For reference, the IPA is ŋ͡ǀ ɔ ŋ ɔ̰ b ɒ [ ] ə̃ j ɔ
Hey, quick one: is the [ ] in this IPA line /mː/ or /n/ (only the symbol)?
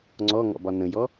n